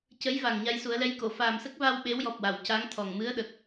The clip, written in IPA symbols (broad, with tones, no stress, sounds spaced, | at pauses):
c ə˧˥ j v a˨˩ ŋ ɲ a˧ j s u˨˩˦ ə̯ l ɛ˧˥ j k o˨˩˨ f aː˨˩ m s ə˦˥ k̚ v a˧ w ɓ e˧˥ w j ɔ˨˩ p̚ w a˨˩˨ w c a˧˥ ŋ t̪ʰ ɔ˨˩ ŋ m ɨ˧˥ ə̯ ɗ ə˨˩ k̚